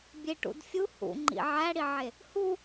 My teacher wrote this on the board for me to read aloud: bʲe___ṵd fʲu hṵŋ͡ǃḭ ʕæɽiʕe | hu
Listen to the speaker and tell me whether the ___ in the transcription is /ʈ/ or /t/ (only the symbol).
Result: ʈ